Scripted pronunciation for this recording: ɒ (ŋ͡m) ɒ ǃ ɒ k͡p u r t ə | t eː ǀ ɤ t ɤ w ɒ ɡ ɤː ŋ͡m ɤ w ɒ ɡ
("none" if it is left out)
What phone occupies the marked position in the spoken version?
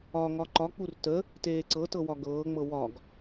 ŋ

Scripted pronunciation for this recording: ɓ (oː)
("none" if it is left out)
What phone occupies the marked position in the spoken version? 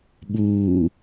uː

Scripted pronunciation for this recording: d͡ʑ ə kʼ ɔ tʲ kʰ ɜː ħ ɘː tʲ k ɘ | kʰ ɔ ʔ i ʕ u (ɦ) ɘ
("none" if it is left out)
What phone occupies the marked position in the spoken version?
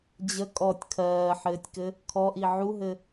ɦ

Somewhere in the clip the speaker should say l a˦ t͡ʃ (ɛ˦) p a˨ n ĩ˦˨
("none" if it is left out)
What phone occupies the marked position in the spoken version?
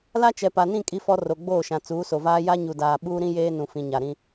ɛ˨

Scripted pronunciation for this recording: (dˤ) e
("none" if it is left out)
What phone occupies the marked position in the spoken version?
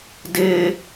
d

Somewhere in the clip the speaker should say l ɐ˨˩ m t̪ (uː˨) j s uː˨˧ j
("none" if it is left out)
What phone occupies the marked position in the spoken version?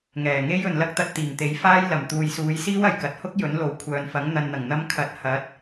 uː˨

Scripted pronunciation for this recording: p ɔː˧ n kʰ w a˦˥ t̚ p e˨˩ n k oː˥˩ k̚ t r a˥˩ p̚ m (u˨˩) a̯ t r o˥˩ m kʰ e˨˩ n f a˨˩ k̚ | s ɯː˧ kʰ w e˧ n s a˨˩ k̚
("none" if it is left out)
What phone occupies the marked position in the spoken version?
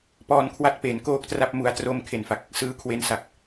u˦˥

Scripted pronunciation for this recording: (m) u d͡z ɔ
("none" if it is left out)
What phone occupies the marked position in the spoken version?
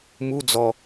m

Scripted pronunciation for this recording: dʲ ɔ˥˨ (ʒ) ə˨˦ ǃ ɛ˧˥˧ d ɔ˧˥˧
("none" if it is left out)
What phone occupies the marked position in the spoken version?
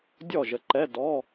ʒ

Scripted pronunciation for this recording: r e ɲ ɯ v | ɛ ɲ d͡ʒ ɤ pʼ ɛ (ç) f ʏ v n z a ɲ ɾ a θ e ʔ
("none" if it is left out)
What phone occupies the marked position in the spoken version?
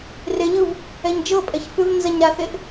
ç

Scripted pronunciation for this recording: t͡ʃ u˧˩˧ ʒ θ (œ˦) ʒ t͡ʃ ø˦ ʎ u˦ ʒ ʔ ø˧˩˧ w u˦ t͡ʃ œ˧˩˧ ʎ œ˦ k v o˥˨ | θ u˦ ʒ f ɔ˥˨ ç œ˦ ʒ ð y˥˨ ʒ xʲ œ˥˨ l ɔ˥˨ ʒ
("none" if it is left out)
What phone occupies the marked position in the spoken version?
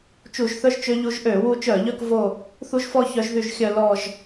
œ˦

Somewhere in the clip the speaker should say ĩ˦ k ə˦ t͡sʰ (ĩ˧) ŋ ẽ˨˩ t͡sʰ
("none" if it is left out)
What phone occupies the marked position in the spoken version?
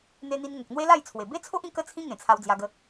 ĩ˦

